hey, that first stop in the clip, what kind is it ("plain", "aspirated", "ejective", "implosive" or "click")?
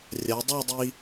plain